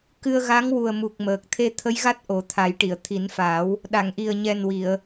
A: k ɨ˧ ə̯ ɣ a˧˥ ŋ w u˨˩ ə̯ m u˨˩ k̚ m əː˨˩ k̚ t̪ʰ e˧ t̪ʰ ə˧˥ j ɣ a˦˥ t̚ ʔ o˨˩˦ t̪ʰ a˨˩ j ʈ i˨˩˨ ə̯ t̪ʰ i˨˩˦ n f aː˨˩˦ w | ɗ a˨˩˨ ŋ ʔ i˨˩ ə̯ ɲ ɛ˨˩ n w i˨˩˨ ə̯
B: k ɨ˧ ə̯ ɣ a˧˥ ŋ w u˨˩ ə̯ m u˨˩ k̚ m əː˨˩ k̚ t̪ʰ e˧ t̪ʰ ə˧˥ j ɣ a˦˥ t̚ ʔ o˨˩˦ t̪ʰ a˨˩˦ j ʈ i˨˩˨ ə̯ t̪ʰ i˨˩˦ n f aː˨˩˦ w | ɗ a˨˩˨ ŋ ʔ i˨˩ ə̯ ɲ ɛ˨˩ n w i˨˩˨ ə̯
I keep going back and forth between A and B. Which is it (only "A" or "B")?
B